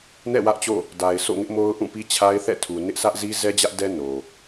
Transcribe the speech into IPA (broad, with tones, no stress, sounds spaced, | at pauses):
n ɛ̰˦˨ w ä˦ ʔ t͡ɕ o̰˦˨ | d a˨ ɪ̯ s o̰˦˨ ŋ ɪ˦ ʔ m o˦ ʊ̯ ʔ ũ˦˨ p i˦ t͡ɕʰ a˦ ɪ̯ θ ɛ̰˦˨ tʰ u˨ n ɪ˦ ʔ s ä˦ ʔ z i˦ z ɛ˦ d͡ʑ ä˦ ʔ d ɛ˦ n o˨